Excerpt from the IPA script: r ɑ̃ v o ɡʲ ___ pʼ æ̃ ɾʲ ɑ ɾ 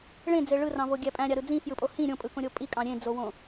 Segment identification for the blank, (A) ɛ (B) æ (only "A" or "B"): B